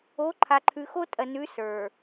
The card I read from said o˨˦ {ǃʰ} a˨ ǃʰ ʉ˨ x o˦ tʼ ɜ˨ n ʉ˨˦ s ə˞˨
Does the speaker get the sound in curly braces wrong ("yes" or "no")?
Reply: no